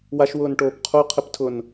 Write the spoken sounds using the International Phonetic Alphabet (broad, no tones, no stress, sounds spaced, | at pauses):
w a ʃ w ʊː n ʈ oː p qʰ u qʰ ɪ p tʰ ʊ n